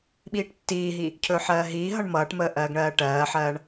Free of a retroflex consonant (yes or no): no